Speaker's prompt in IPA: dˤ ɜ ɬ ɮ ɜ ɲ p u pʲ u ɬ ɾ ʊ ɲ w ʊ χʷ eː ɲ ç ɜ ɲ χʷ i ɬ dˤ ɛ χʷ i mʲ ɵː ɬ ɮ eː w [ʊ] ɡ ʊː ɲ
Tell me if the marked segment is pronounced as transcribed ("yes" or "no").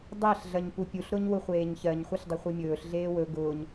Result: no